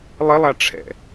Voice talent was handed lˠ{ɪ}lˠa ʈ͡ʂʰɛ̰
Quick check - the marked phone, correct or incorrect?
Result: correct